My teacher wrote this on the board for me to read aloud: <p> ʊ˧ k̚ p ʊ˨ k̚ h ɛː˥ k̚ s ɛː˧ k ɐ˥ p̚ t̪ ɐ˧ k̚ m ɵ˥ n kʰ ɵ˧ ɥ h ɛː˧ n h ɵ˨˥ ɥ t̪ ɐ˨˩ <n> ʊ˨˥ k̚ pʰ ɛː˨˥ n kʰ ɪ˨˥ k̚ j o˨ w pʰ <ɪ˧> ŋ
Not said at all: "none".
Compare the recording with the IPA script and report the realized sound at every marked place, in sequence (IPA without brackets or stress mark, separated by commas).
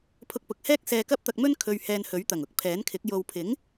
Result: pʰ, ŋ, ɪ˨˥